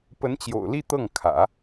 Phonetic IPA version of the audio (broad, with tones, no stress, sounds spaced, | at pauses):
p ə˧˥ n t͡ɕ j o̰˨˩ ʊ̯ l i˥˧ t̪ ɤ˥˩ ŋ kʰ ä̰˨˩˦